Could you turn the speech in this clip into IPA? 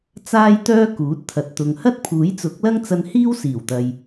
t͡s aː˥ j t̪ œː˥ k uː˨˥ t̚ t̪ʰ ɐ˨ t̚ t̪ ʊ˨ ŋ h ɐ˥ t̚ pʰ uː˨˥ j t͡s ʊ˨˥ k̚ l ɐ˥ ŋ t͡s ɐ˧ n h iː˥ w s iː˨˩ w t̪ ɐ˨ j

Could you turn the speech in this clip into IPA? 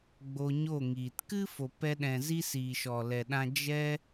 ɡ͡b o˧ ɲ o˦˨ ŋ iː˨ t k ɨ˦ f o˨ p ɛ˧ ɗ ɛ̃˨ z i˧ s iː˨ ʃ ɔ˨ l ɛ˨ ɗ ã˧ d͡ʒ ɛ˧

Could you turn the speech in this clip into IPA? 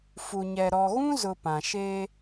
f u˨ ɲ ɛ˨ ɾ ɔ˨ ɣ ũ˦ z ʊ˨ p ã˨ ʃ e˦

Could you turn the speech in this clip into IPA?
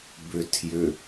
b ʏ tʰ j ʏ

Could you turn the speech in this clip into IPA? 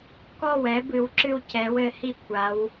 k ɔ˥˩ w ɛ˨˥ b ɨ˨˥ w ǁ ɨ˥˧ w c ɛ˨˥ w ɘ˨˥ h i˥˧ kʷʰ a˨˥ w

